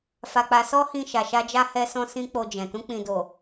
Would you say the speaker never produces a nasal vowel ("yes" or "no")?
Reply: no